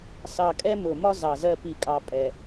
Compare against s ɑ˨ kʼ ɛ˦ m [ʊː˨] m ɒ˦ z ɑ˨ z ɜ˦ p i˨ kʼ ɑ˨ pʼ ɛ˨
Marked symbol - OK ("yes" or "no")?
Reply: yes